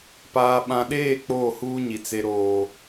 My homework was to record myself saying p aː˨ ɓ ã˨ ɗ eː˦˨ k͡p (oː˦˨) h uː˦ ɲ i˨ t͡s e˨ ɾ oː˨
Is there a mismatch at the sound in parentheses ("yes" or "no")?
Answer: no